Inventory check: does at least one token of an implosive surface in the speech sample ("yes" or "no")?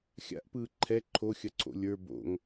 no